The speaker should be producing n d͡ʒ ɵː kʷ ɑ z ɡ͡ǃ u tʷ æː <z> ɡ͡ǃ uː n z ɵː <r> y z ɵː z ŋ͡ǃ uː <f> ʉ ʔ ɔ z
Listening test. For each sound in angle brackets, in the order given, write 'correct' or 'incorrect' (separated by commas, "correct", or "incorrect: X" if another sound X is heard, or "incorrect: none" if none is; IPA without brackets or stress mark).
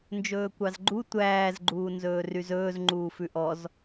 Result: correct, correct, correct